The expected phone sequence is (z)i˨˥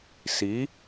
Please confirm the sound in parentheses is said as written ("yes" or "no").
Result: no